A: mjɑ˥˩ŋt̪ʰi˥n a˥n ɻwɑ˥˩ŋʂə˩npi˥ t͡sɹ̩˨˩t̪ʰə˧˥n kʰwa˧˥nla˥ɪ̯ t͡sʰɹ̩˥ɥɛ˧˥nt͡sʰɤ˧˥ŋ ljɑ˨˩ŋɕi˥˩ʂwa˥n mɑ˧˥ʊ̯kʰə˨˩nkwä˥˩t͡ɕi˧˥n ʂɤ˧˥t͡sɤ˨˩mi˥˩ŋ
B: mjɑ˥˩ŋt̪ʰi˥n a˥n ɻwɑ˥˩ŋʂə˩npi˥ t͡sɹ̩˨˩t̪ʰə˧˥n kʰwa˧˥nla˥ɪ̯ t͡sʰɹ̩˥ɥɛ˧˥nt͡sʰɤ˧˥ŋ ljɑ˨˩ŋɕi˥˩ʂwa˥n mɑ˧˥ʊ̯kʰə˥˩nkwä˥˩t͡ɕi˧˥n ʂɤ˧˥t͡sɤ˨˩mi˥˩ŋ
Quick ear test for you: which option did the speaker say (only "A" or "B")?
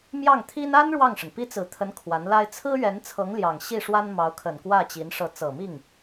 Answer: A